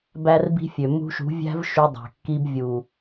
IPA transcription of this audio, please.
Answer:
b æ˦ r b i̤˦ fʲ ø˨ m ṳ˧ ʃ ṳ˨˦ vʲ æ̤˦ v ʃ ʉ˧ dˤ æ̤˨ kː i˧ b vʲ u˨

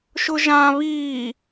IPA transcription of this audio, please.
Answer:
ʃ ʊ ʒ ã β iː

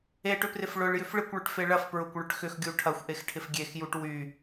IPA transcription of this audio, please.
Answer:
e ʈ ʏ p r ɪ f ɭ ʊ ɭ j ʏ f ɭ ɪ kʷ ɭ ʏ ʈ f e ɭ ɐ f p ɹ ʊ kʷ ɭ ʏ ʈ x ʏ x ɡʲ u ʈʰ ɐ xʷ ʔ e x ʈʰ ɪ f ɡʲ e x j u ʈ w y

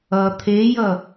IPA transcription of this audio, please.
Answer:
ʌ t̪ʰ e j ʌ

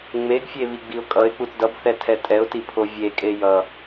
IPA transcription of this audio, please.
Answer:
ŋ͡m e ɡ fʲ e β i ɡ͡b i ʊ̯ kʼ ʌ ɪ̯ k͡p u t d ʌ b θ ɛ tʰ ɛ tʼ ɛ ʊ̯ t i pʰ o vʲ e kʼ e j ʌ

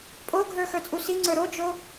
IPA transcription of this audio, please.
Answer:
pʼ o ɡʱ ə˞ x ə˞ t͡sʼ u s i ŋ͡ǀ ə˞ ɾ o d͡ʒ o

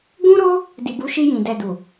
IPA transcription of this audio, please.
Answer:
ɡ ũ˦ ɾ o˦ | d i˨ b u˨˦ ʃ i˧ j ĩ˨ d ɛ˨ d u˨

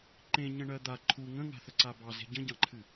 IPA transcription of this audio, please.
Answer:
ǃ ẽ ɲ ə̃ ɳ ɜ d̪ a ǃʰ u ŋ ə̃ ŋ a̤ θ ə ǀ a b ɑ z e̤ ɟ ə̃ ɟ ɑ̃ ǃʰ ɨ

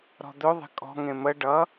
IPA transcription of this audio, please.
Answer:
ɾ ɔ̤ d̪ ɵ ðˤ e̤ kʼ ɔ̤ ŋ ẽ m ə ɖ ʌ

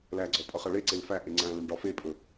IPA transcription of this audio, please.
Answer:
l æ ɡ͡ǀ ɔ pʼ ʌ χ ʌ ɭ e ǀ e l f æ ʔ e ŋ͡ǀ æ̃ l æ̃ ɳ ɖ ɒ f e pʼ ɵ

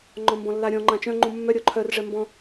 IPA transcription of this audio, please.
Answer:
ŋ͡ǃ ɔ̃ m b ɔ̃ lː a ɾʲ ɔ̃ ŋ͡ǃ ã t͡ʃ œ̃ ŋ͡ǃ ũ mː œ ɾʲ ɔ ǃʰ œ r ʐ ɛ m b ɔ̃

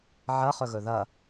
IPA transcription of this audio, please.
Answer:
ʕ ɐ χ ɵ ɣ ɵ ð ɐ

